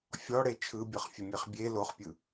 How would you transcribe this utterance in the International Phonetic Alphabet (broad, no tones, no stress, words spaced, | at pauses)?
fʲɔɽe t͡ʃʰɯbʲɤχ fʲəmʲeχbʲe loχpʲɯ